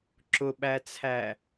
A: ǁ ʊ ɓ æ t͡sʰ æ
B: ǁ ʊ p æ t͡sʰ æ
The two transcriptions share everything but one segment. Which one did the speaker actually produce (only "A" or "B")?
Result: A